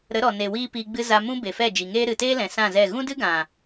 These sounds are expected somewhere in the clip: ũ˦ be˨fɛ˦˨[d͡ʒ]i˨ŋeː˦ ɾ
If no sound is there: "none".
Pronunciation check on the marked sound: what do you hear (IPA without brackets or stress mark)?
d͡ʒ